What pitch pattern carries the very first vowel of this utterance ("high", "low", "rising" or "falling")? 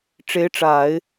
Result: rising